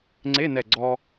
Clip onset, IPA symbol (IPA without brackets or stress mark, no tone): ŋ͡ǀ